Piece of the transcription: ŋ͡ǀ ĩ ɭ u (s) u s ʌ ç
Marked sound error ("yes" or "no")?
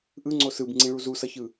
yes